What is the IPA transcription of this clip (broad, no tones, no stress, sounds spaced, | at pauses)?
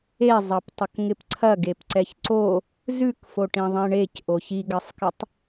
e zˤ ɑ p tˤ ɐ k ŋ ɪ p ǀʰ ɐ ɡ e p ǀ ɛ ç ǀ o | z ʉ k f o ʈ ĩ ðˤ ẽ ɳ e c ʔ o ç i ɡ ɐ sˤ k ɪ tˤ